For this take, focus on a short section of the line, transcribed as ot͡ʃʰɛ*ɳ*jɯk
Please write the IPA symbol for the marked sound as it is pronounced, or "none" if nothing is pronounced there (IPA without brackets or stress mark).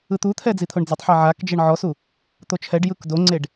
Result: ɖ